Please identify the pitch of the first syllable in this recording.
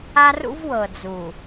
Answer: high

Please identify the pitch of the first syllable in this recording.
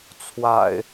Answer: low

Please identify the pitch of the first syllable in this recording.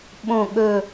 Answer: low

